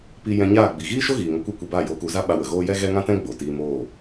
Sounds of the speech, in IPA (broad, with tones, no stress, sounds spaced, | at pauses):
p i˧ j ɛ̃˧ ɲ aː˦˨ ɡ͡b i˨ ɣ iː˦ ʃ o˦ ɣ iː˨ ŋ o˧ kʷ ɛ˦ kʷ e˧ b aː˦˨ j oː˧ k u˨˦ z a˦ ɓ a˧ w ə˨ ɣ oː˦ j ɛ˦ ɣ ɛ˦ ŋ ã˦ t ɛ̃˦ ɡ͡b o˨ t iː˧ m oː˦˨